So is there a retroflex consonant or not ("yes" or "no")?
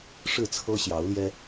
yes